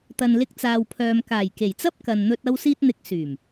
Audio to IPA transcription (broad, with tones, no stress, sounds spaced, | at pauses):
t̪ ɐ˨ n l ɪ˧ k̚ t͡s aː˨ w pʰ œː˨ m k aː˨˩ j k e˨˩ j t͡s ɐ˥ p̚ k ɐ˨ n n̪ ɵ˧ t̚ ɐ˧ w s iː˧ t̚ n̪ ɪ˨˥ k̚ s yː˨˩ m